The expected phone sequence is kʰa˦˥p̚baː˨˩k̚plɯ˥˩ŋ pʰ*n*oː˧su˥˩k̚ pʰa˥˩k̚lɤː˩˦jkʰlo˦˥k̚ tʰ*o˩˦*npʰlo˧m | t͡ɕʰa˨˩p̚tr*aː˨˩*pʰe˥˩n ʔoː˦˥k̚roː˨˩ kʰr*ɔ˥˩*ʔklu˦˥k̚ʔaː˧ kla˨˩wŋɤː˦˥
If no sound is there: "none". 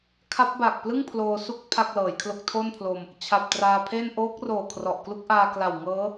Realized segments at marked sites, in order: l, o˥˩, aː˧, ɔ˨˩

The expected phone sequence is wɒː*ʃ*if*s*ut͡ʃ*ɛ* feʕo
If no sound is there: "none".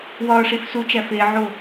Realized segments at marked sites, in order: ʂ, s, æ

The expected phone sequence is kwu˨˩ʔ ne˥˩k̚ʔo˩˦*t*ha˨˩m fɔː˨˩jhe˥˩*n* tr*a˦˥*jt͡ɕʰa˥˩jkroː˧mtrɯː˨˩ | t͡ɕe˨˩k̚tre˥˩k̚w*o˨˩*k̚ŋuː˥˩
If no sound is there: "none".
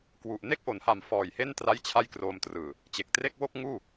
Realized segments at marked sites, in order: n, n, a˥˩, o˥˩

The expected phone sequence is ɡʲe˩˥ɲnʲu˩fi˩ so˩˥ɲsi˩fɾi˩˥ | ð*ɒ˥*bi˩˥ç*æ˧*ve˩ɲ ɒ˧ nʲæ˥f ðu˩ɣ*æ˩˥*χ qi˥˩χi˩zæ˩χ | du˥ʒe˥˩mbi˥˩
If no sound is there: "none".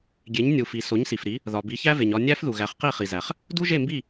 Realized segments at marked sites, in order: ɒ˩, æ˥, æ˩˥

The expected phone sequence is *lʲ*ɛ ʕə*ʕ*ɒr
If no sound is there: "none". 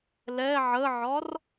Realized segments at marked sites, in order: l, ʕ

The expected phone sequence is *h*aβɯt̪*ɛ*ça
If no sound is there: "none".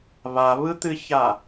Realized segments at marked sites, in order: β, ɨ

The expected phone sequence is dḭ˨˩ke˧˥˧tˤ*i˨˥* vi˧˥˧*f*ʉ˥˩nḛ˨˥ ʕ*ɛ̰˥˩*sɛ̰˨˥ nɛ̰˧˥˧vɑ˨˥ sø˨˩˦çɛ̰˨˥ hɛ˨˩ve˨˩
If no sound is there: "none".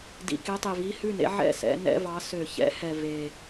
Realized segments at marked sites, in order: i˨˩, h, ɛ̰˥˩

